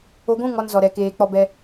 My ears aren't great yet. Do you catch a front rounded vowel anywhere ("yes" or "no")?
no